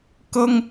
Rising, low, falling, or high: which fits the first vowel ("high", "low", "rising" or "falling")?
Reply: high